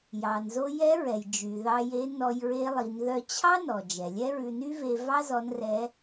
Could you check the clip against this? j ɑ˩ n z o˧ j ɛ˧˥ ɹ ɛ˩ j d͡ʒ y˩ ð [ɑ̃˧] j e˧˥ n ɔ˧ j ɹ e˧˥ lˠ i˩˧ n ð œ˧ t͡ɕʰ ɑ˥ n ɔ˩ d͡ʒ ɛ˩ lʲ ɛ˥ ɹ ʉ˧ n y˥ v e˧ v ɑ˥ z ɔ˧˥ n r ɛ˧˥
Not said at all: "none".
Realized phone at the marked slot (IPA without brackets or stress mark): ɑ˧